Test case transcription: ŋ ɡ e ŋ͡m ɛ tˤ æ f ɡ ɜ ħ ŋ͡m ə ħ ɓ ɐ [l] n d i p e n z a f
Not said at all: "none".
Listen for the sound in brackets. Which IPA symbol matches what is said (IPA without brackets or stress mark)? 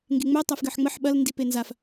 l